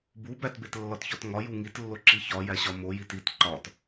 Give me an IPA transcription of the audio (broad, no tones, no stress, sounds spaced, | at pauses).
b u b æ t b e t lː ɒ t ç ɒ t ŋ ɒ j u ŋ i t lː o ǁ i ç ɒ j æ ɕ ɒ m o j i t i t ǃ ɒ t